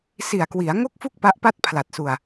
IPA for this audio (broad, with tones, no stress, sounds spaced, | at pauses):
s i˨˩ a̯ k w i˩˦ a̯ ŋ o˥˩ k̚ f u˥˩ k̚ p a˦˥ ʔ p a˥˩ t̚ pʰ l a˨˩ t̚ s u˧ a̯